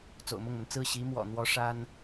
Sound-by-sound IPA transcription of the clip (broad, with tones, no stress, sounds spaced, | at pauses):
t͡s o̰˨˩ ʊ̯ m ʊ˥˩ ŋ m ə˩ n t͡s ɹ̩˥˩ ɕ i˧˥ m w ɔ̰˨˩ n̪ w ɔ˧˥ ʂ a˥ n